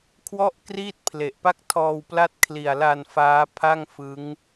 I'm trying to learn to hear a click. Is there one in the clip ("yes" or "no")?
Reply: no